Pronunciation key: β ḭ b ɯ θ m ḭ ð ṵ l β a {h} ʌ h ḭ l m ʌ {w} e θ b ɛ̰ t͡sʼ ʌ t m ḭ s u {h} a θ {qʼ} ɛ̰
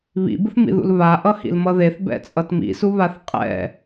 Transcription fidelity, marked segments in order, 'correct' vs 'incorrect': incorrect, incorrect, incorrect, correct

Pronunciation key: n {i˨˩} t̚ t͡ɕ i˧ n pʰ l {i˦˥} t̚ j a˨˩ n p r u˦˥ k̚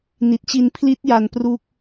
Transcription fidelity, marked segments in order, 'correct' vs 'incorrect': correct, correct

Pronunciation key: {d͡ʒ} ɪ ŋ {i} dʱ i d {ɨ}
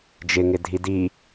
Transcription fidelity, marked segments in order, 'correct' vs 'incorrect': correct, incorrect, incorrect

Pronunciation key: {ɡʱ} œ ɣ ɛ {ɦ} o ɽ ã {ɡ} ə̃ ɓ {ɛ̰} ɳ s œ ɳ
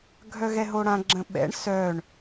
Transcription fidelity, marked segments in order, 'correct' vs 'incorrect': correct, correct, incorrect, correct

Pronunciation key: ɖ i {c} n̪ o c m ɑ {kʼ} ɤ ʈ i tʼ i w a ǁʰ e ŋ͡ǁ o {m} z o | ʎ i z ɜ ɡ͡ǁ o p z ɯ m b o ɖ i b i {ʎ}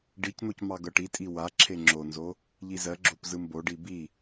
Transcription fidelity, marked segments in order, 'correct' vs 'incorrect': correct, incorrect, incorrect, incorrect

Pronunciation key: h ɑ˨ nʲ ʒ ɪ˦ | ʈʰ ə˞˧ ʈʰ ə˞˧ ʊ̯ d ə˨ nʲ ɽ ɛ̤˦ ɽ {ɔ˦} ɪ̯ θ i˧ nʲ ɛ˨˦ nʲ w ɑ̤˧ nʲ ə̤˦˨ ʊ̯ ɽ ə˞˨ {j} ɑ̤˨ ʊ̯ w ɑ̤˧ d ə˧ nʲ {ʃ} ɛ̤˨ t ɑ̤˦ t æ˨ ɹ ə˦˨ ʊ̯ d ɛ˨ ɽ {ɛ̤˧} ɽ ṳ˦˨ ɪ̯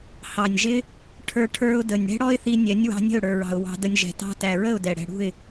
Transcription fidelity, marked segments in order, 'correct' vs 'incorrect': correct, incorrect, incorrect, correct

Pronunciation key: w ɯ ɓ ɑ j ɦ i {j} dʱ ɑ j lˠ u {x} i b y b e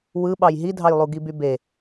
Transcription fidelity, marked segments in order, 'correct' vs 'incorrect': incorrect, incorrect

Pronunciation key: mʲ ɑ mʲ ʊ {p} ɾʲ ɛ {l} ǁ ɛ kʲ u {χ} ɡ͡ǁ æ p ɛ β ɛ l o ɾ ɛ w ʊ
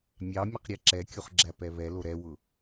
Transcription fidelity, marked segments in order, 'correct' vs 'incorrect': incorrect, incorrect, correct

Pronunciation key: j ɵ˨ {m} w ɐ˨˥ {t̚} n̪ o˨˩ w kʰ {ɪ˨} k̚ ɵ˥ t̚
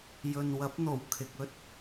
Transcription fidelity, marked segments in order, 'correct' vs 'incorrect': incorrect, incorrect, correct

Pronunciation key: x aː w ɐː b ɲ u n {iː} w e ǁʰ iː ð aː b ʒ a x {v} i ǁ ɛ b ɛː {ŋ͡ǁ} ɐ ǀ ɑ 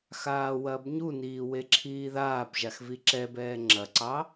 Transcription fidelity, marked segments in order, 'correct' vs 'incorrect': correct, correct, correct

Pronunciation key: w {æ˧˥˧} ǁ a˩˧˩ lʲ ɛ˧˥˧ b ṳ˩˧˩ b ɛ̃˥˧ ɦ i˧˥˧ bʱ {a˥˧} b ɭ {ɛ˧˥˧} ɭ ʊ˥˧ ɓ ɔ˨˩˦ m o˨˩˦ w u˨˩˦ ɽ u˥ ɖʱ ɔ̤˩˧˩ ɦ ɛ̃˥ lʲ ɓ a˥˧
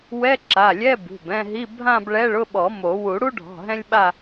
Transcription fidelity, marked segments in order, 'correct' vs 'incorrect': incorrect, incorrect, correct

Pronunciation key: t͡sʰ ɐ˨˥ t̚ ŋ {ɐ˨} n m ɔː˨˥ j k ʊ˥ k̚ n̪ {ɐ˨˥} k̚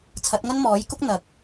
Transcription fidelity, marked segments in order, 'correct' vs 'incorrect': incorrect, correct

